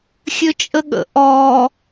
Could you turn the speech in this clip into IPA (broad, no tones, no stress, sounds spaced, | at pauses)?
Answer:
xʲ ø t͡ʃʼ ə ɠ ə̰ ʔ ɔ